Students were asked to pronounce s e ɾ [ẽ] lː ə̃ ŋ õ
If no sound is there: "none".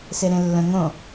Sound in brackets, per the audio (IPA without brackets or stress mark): ẽ